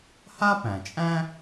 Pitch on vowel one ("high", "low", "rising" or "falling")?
high